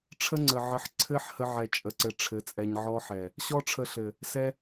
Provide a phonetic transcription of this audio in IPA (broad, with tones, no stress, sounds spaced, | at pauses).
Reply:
ʈ͡ʂʰ ə˦ ŋ͡ǀ ə˨ ʕ ə˧ ħ ǀʰ ɘ˦ ħ h ə˦ ʕ ɛ˧ t͡ʃʼ ə˧ ǀ ɘ˧ ʈ͡ʂʰ ɘ˨˦ t͡sʼ ɛ˧ ɲ ʕ ɔ˦ ħ ɛ˨ | ɕ ɔ˦ ʈ͡ʂʰ ə˧ ɬ ɘ˨ | s ɛ˦